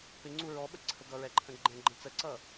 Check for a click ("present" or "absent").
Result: present